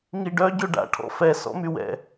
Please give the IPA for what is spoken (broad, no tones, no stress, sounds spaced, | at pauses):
ŋ i ɖ œ ɟ ø ɖ a̰ ʈʰ ɔ̰ f ɛ s ɔ̰ m y w ɛ̰